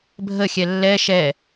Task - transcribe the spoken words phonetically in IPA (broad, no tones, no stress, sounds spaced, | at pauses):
bʱ ə xʲ ɛ lː ɛ ʃ ɛ